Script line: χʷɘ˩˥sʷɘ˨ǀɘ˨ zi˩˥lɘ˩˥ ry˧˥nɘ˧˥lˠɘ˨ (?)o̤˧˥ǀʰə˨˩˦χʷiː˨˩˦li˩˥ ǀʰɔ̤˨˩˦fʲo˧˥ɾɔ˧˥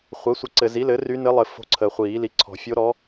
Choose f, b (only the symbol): f